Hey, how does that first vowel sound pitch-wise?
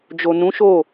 low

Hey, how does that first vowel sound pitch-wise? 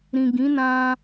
low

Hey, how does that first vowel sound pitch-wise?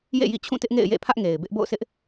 falling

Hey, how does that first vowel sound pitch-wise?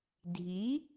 rising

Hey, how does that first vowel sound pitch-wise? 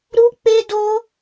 high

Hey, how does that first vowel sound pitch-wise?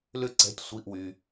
falling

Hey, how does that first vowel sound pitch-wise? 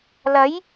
rising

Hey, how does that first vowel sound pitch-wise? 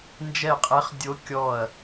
falling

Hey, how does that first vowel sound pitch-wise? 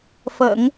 low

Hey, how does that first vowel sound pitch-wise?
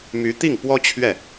rising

